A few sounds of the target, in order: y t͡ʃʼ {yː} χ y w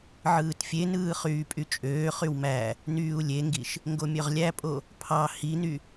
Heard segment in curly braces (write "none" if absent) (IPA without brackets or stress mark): øː